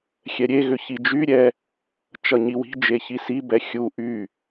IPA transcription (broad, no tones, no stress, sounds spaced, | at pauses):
xʲ ɛ ɾʲ e ɣ ʏ ç i d͡ʒ y ɾʲ ɛ | t͡ʃ ʌ ɲ i w i̤ d͡ʒ e ç i s i b ɛ xʲ u ʔ y